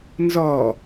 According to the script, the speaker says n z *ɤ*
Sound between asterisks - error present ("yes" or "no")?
yes